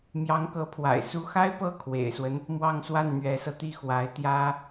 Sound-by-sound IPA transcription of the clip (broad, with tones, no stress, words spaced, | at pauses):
mjɑ˧˥ŋkɤ˧˥pʰwa̰˨˩ɪ̯ su˧˥xa˥ɪ̯ pɤ˥˩kʰwḛ˨˩ɪ̯swə˦n | mwɑ˥˧ŋswa˥˩nn̪ɥɛ˧˥sɤ˧ t̪i˥˩xwa˧˥ɪ̯ t̪jä˥